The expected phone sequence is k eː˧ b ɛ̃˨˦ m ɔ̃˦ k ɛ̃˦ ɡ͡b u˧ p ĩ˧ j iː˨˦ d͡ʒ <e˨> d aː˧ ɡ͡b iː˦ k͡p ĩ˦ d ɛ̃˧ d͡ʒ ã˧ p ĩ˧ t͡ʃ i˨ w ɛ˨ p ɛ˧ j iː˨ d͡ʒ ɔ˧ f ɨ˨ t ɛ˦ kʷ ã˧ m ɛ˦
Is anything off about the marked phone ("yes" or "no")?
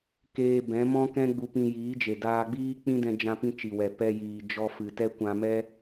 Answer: no